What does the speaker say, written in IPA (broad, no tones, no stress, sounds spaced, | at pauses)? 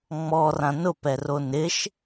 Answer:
ŋ͡m ɔ r ã n ʊ p ɛ r o n ɪ ʃ